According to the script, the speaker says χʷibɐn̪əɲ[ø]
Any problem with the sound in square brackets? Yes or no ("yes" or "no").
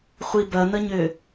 no